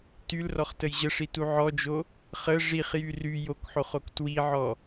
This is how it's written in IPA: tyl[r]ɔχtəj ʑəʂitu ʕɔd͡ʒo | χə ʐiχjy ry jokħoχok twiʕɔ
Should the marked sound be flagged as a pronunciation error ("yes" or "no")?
no